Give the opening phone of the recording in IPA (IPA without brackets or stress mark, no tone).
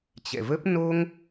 t͡ɕ